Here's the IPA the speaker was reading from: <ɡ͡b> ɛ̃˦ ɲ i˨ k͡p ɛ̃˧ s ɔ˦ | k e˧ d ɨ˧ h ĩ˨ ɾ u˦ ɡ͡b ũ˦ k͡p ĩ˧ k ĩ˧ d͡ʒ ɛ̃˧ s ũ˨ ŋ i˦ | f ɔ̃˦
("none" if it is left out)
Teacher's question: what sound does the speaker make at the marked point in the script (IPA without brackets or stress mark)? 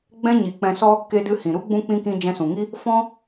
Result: ɡ͡b